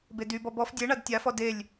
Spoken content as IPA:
bedybɔ bɔf dʲeɳad tʲafɔ delʲ

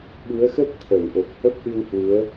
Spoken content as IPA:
ɓu˨˦ə̯xə˦˥p̚ t̪ʰə˧˩wʔo˨˩k̚hə˦˥p̚ʔɨ˧w hwu˨˦ə̯

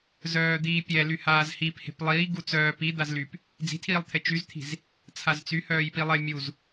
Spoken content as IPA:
zœːd̪iːpʲɛ lyhaːzhiphe̤p lˠiː ɡut͡sœː pid̪az lyp | d͡zi̤tʰiːlˠt̪ʰe t͡ʃyzt̪ʰi̤z | t͡sʰazt͡sy hœːjpilˠe mʲuz

